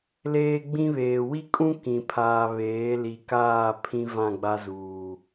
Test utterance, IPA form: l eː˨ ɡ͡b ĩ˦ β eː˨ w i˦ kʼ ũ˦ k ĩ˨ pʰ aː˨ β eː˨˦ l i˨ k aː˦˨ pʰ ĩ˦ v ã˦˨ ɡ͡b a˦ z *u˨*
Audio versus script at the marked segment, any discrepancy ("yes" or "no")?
yes